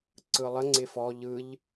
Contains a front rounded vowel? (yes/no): no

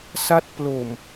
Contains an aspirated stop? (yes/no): no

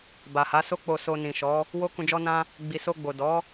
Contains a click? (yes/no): no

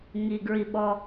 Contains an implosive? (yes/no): yes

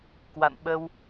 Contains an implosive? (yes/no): yes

